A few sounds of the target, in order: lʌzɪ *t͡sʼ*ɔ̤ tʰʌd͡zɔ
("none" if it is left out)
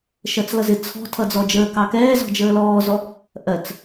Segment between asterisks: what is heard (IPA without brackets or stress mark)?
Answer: t͡sʰ